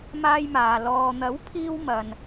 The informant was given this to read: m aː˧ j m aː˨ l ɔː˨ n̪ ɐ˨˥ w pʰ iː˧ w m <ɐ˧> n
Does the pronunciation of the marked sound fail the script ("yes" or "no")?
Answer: no